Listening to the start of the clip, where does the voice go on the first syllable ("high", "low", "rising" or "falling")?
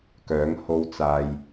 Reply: rising